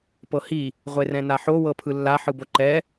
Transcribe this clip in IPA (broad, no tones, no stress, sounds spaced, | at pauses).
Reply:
p ɤ h i | ʁʷ e r ɛ̃ n a ħ o w ɤ pʰ ɯ lː a ħ ɯ b o ǃ ɛ